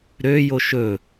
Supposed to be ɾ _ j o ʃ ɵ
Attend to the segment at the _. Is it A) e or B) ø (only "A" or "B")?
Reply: B